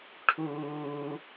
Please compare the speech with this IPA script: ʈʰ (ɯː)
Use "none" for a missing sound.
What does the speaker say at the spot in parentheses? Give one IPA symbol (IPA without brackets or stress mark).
uː